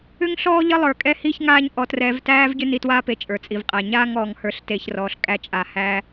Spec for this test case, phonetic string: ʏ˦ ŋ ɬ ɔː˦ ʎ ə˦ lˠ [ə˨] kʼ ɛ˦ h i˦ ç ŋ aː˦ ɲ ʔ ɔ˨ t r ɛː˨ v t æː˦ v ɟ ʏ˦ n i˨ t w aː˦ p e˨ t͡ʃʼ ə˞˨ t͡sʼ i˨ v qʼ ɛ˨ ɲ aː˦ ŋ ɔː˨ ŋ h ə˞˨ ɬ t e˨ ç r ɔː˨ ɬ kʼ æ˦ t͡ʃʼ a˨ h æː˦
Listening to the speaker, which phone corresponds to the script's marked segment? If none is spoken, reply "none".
ə˞˨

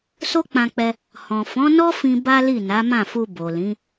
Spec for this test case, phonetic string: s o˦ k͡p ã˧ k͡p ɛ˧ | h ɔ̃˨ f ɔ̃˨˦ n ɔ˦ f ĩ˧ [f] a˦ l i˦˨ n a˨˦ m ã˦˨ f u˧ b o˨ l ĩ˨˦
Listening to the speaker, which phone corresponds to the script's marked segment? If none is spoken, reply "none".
b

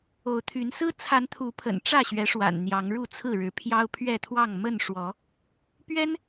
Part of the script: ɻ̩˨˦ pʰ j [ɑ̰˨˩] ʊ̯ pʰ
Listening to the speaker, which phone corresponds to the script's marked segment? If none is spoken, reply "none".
ɑ˦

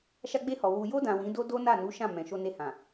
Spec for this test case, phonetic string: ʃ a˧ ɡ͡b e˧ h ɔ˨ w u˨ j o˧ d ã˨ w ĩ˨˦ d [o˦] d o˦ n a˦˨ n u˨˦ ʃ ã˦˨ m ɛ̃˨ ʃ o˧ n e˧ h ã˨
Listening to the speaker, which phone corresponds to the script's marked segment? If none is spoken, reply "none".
o˦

